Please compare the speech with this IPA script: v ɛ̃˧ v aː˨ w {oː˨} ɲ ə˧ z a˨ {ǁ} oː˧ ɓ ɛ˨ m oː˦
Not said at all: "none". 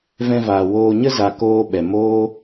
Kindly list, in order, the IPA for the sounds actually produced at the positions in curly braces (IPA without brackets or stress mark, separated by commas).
oː˨, k